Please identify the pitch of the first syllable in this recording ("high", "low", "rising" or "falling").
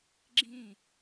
falling